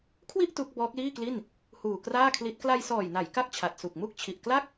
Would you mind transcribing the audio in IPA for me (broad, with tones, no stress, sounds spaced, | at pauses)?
kʰ w i˥˩ ʔ t u˦˥ k̚ b ɔː˦˥ k̚ l iː˥˩ k l i˥˩ n | h uː˨˩ k r aː˥˩ kʰ l i˦˥ t̚ k l a˧ j s ɔː˨˩ j n a˩˦ j k a˥˩ k̚ t͡ɕʰ a˨˩ t̚ s u˨˩ k̚ m u˥˩ k̚ t͡ɕʰ i˨˩ ʔ k l a˥˩ k̚